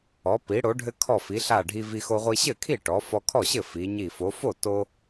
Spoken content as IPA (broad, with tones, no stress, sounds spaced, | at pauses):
ɔ˩˧ p i˩˧ ɽ o˩˧ ɖʱ ɘ˧ kʰ ɔ˧˩ f i˩˧ ɬ a˧˩ ɖʱ i˧ v i˧ x o˧ ʁʷ i˧ ɕ ɘ˥˩ kʰ i˥˩ ʈ ɔ˩˧ f ɔ˧ kʰ ɔ˥˩ ɕ ɘ˥˩ f i˩˧ ɲ i˧˩ f o˩˧ f o˥˩ t o˧